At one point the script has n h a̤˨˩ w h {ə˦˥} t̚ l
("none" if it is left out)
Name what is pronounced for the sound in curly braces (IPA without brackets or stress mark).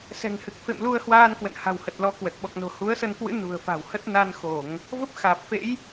ə˨˩